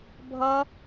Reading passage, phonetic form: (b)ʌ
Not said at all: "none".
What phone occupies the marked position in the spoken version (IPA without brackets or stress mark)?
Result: bʱ